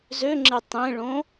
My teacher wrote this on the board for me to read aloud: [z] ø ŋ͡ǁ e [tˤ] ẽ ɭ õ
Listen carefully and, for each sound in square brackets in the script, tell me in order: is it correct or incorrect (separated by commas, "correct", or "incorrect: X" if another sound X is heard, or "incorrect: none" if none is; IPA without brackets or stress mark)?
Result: correct, correct